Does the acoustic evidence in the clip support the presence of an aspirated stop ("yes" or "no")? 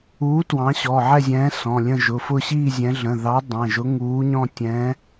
no